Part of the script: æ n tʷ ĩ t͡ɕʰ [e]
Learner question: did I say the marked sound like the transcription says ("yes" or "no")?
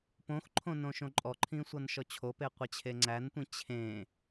no